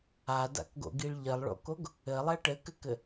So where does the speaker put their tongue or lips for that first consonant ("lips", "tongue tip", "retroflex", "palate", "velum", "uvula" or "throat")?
tongue tip